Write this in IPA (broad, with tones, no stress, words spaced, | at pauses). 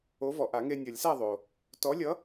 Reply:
o˨˥vɔ˩ʔa˨˩˦ŋe˧ nʲʌ˨˩˦lʲsa˥˨ ðˤo˩ | tɔ˨˥lʲʌ˨˥